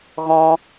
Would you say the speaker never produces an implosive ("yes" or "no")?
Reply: yes